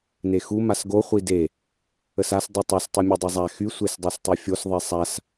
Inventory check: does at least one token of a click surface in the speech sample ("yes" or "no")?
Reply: no